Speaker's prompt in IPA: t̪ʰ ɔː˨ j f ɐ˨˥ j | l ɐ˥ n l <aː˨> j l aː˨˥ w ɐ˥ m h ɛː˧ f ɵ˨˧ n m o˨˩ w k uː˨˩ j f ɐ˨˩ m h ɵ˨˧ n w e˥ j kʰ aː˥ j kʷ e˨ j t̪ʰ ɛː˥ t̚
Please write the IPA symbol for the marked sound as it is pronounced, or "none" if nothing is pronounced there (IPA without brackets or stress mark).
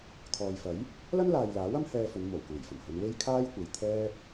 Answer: aː˨